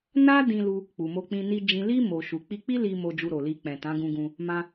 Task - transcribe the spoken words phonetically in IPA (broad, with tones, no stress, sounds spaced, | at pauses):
n a˦ d ĩ˧ l u˧ | k͡p u˨ m o˧ k͡p ĩ˧ n i˧ d͡ʒ ĩ˨ l i˧ m o˨ ʃ u˨ k͡p i˧ k͡p i˦ l i˧ m o˧ d͡ʒ u˧ ɾ o˨ l i˧ k͡p ɛ̃˨ t ã˨˦ ɡ ũ˧ ɡ ũ˧ | m ã˧